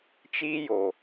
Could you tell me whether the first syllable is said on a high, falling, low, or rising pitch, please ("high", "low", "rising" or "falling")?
high